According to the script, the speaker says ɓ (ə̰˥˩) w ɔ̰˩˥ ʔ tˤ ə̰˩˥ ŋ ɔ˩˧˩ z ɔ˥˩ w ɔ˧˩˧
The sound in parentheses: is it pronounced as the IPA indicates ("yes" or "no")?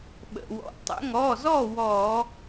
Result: no